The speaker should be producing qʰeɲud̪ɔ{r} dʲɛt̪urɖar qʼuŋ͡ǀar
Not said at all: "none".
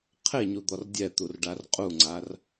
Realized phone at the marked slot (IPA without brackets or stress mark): r